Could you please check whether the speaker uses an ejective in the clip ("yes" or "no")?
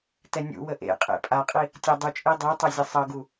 yes